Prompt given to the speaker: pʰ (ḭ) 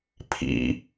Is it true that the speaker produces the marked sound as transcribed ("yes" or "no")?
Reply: yes